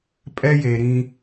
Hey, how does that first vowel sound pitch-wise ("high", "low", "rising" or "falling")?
high